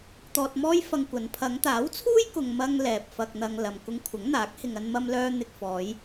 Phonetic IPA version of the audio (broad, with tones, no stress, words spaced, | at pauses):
t̪ɔː˧t̚mɔː˥jfɐ˧ŋkʷɐ˨˧n pʰɐ˨˧ŋt̪aː˨˥wt͡sʰuː˥jkʊ˨ŋ mɐ˧ŋ lɛː˨p̚fɐ˧k̚n̪ɐ˧ŋ lɐ˨mkʊ˧ŋkʷʰɐ˨˥ŋn̪aː˨˥k̚ hɪ˨ŋɐ˧nmɐ˧mlœː˧ n̪ɪ˨k̚fɔː˨˧j